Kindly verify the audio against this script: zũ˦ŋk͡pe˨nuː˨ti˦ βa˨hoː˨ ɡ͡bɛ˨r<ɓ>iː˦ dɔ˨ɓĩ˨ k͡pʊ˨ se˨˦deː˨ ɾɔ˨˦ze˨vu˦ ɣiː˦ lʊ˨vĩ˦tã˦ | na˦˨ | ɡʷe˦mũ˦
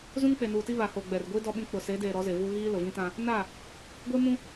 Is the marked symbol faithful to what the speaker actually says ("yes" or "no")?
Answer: no